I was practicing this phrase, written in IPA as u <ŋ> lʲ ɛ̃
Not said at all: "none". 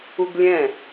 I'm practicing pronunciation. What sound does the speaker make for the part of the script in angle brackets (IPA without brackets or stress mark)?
ɡ